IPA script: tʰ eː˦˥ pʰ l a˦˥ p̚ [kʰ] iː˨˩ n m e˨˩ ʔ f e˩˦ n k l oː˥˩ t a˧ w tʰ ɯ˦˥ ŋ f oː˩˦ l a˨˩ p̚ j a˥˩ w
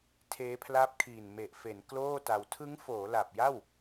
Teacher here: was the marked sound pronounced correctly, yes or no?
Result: yes